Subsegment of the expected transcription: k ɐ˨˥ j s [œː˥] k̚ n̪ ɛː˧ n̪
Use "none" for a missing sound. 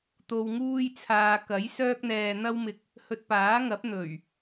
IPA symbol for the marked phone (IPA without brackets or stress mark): œː˥